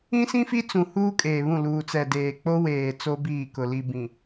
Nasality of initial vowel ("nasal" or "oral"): nasal